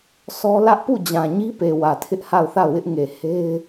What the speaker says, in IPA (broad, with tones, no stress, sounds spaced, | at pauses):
s ɔ˦ l ä˦ ʔ p u˦˨ d͡ʑ ã˨ ɲ i˦ p e˨ w ä˨ tʰ ɪ˦ ʔ h a˦˨ ʊ̯ θ a˦˨ ʊ̯ w ɪ˦ ʔ ŋ e˨ h e˦ ɪ̯